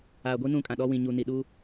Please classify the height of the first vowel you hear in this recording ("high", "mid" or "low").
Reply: low